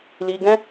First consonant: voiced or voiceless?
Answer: voiced